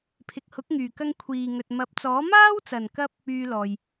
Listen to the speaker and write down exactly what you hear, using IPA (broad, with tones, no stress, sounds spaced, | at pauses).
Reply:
pʰ ɪ˨ k̚ h ʊ˨˥ k̚ ŋ yː˨˩ k ɐ˧ ŋ kʷʰ iː˨ ŋ ɵ˨ t̚ m ɐ˨˥ p̚ t͡s ɔː˨˥ m aː˥ w t͡s ɐ˨˩ n k ɐ˧ p̚ | yː˧ l ɔː˨ j